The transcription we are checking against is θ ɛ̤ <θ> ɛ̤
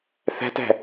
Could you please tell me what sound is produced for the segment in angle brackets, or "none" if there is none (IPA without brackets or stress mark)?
t